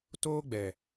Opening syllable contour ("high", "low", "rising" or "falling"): high